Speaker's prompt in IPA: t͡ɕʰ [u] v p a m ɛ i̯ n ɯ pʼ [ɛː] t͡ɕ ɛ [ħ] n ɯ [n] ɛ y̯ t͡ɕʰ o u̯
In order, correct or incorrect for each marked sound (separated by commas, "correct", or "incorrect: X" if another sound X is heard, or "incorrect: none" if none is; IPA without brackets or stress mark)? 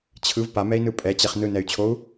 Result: incorrect: ɯ, incorrect: ɛ, incorrect: χ, correct